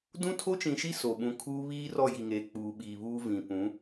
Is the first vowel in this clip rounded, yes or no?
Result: yes